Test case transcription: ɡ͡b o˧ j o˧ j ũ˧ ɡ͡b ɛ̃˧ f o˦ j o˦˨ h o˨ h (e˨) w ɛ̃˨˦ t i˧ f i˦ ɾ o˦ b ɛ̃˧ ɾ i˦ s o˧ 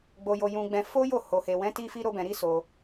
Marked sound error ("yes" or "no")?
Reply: no